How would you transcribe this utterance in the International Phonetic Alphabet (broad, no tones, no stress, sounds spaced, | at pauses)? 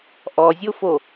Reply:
ʔ ɔ zʲ o f o